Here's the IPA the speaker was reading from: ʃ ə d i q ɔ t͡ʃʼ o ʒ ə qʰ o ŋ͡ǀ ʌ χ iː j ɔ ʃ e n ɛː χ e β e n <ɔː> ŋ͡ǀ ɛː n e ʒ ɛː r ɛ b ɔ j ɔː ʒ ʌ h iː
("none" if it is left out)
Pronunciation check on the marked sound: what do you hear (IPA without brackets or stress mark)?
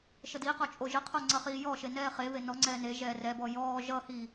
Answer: ɔ